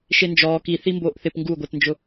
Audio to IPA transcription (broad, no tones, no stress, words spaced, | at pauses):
ʃend͡ʒɔː ki θimboːʔθɪp ŋɡuɡʷɛtnd͡ʒʊ